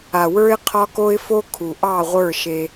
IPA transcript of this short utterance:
a˨wə˞˦ɪ̯ qʰɒ˦ko˦ɪ̯fo˦ kʰu˨ʔɑ˦˨ʁʷə˞˦˨ ʃe˦

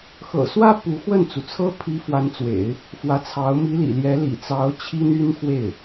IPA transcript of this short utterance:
xɤ̰˨˩swä˥ pu˧˥ xwə˥˩nt͡su˩t͡sʰɤ˥ pʰi˧˥ fwa˧˥nt͡swḛ˨˩˦ɪ̯ | fwä˧˥t͡sʰɑ˧˥ʊ̯ mi˧˥lḭ˨˩ljɛ˧˥ lḭ˨˩t͡sɑ˧˥ʊ̯ t͡ɕʰi˥ny˥nxwe˥˩ɪ̯

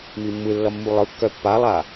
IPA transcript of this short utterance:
mimːɯlːʌ mːulˠɯkːœ pːalˠaː

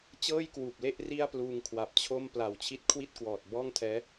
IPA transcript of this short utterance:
t͡ɕɤː˥˩jkwuː˨˩p̚le˥˩ʔ ri˥˩a̯pluː˧ŋkʰwa˨˩p̚t͡ɕʰo˥˩m pla˨˩wt͡ɕʰi˦˥t̚kʰwi˥˩t̚kwɔː˨˩t̚ bɔː˥˩ŋtʰɛː˦˥

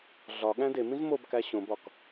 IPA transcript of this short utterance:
ɮɒɠæ̃ demĩz mobkæ ɕõbɒk

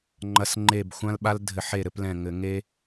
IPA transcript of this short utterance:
ŋ͡ǃɐ˨˦s ŋ͡ǃe˧˩bxʷã˦lɓa˦l dʱɘ˧˩˧ħe˧˩ɾɘ˥˨plɛ̃˧˩ ŋɘ˧˩˧ŋe˦

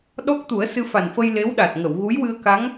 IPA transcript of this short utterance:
ɗɔ˦˥k̚t̪u˨˩˦ə̯ sɨ˧fa˨˩nfə˧j le˧˥wɗa˨˩t̚ŋə˨˩˨w ɣu˧˥jwɨ˧ə̯ka˧˥ŋ

